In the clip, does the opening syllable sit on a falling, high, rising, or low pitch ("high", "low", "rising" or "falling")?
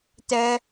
high